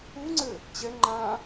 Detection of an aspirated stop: absent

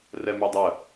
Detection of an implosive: absent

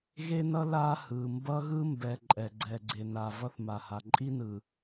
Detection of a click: present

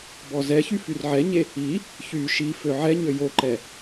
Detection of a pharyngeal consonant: present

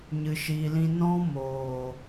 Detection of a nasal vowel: present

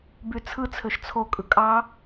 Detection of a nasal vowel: absent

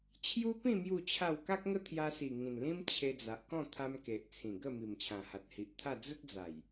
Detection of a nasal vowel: present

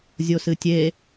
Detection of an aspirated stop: absent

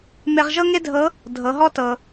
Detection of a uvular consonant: present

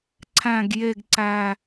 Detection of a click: present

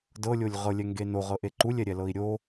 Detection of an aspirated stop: absent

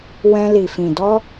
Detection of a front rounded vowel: absent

